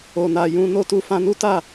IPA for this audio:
o˨ n a˨ j ũ˧ n o˧ t u˧ f ã˧ n u˦ t a˦˨

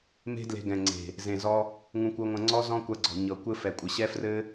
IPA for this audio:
m e̤˦ d l e̤˧ ɡ ɛ̃˨ ŋ͡ǀ e̤˨ | z ẽ˨ z ɔ˧ | ŋ ũ˧ kʷ ɤ˧ ŋʷ ɐ̃˧ ŋ͡ǀ ɔ˦ z ɔ̃˦ kʷ ɐ˧ ɡ͡ǀ ɔ̤˨ ɲ ɤ˨ kʷ ɘ˧ f ɛ˨ kʷʼ ɘ˨ ɕ ɛ˦ f r ɘ˦

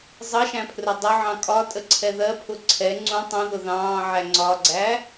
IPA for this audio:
zˤ ʌ ʃ æ̃ pʰ r ʊ dˤ ʊ ʕ ɑ̃ kʼ ɒ tʼ ə ǀʰ ɛ ð ɜ pʰ ʊ ǀʰ ɛ ŋ͡ǀ ũ tˤ ũ ð ʊ ð ɑ̃ː ʕ æ ŋ͡ǀ ɒ ɡ͡ǀ æ

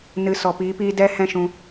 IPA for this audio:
n ɨ˨ s ɔ˨ p iː˨˦ p iː˦ d ɛ˦ h ɛ̃˦ ʃ ũ˧

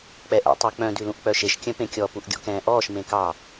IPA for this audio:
k͡p ɛ ʔ ɛ̰ tˤ u k͡p œ̃ d ʉ l ũ ʔ k͡p œ ʃ e ʃ kʲ œ̃ p ẽ kʲ ɔ p u ʔ ɡʲ ɔ̰ k ɛ̃ː ʔ ɔː ʃ m ẽ k ɑ

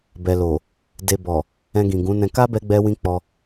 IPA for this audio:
b ɛ˨ l o˨ | d e˨ b ɔ˨ | ɛ̃˧ ɡ ĩ˨ ɡ ũ˨˦ n ɛ̃˧ k a˦ b ɛ˦ ɡ͡b ɛ˦ w ĩ˦ k͡p ɔ˧

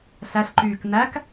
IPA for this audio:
ɬ æ ɬ ǃ yː k n æ k

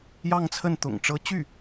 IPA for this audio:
j ɑ˥˧ ŋ t͡sʰ ə˥˩ n t̪ ʊ̰˨˩ ŋ ʈ͡ʂ ɤ˧˥ t͡ɕ y˥˩

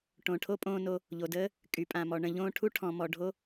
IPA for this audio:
ʈ õ˨ ʈʰ o˦ pʼ õː˧ n o˧ | ʎ o˨ d əː˦ | kʼ y˨ pʼ ã˨ m ɔ˨ ɳ ə̃˨ ʎ õː˧ ʈʰ u˦ ʈʰ ɔ̃˨ m ɔ˨ ɖʱ o˧

